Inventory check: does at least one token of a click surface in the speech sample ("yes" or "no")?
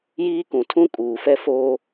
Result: no